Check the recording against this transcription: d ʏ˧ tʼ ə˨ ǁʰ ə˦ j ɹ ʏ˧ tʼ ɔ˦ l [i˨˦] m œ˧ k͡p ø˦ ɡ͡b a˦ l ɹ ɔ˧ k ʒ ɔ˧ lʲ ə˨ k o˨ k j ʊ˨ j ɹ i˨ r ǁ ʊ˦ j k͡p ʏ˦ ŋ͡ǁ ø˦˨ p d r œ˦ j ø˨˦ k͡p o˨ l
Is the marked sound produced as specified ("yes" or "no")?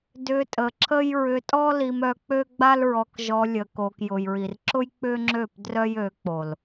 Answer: no